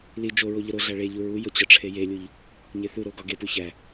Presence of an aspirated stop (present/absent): present